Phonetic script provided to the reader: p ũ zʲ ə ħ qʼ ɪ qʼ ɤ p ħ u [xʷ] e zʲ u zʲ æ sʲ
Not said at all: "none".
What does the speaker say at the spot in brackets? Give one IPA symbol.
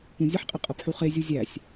χ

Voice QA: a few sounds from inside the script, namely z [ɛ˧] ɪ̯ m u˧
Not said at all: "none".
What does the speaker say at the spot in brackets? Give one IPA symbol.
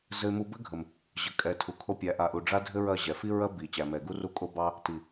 ɘ˧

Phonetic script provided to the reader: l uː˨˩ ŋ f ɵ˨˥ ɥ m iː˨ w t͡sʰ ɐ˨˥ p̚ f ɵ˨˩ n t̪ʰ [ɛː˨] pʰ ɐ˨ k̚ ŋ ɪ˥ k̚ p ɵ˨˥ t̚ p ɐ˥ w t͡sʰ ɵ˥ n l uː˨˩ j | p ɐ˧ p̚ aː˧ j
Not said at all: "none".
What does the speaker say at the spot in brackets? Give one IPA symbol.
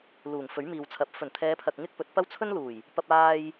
ɛː˨˧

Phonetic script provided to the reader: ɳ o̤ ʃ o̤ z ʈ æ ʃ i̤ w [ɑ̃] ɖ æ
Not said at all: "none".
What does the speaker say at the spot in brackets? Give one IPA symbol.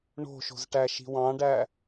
ɑ̃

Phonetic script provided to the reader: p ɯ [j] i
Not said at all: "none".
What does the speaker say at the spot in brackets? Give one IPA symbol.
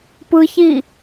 ç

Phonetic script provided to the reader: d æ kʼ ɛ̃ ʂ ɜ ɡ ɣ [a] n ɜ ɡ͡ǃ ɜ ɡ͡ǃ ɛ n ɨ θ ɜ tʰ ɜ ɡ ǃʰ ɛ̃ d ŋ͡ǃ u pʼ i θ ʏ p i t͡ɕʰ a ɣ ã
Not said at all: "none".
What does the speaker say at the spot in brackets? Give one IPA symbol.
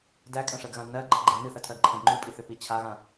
ã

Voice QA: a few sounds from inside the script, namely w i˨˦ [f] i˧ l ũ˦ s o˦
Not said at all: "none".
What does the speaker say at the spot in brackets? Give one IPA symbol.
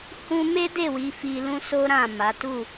f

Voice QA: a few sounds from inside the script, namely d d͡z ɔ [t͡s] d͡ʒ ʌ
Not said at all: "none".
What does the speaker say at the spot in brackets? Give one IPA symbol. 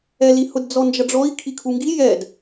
n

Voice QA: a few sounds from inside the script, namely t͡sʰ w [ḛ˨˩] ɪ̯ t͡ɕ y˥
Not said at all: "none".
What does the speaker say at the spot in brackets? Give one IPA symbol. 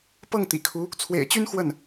ḛ˨˩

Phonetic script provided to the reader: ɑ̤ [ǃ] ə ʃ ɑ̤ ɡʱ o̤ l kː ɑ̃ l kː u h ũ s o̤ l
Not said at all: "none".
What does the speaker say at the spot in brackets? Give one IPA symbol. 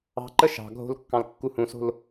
ǃ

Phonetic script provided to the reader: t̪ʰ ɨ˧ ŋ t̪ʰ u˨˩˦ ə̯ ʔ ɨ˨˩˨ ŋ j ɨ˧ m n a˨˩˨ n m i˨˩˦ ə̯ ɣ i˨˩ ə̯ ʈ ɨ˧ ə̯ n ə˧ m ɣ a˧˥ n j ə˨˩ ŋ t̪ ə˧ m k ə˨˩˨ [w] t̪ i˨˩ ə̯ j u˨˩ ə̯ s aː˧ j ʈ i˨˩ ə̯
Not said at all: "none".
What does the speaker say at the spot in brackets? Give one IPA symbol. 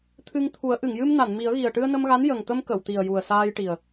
w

